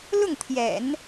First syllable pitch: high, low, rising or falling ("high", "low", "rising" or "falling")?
falling